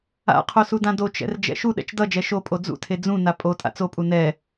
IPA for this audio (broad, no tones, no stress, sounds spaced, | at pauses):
a̰ qʰ o s u d ã d o t͡ʃ ɛ̰ r d͡ʒ ɛ̰ ʃ u ɗ ɛ̰ t͡ʃ d ʌ d͡ʒ ɛ ʃ o pʼ o d͡z ṵ tʰ e d͡z ũ n a pʼ o tʼ a̰ t͡s o pʼ u n ɛ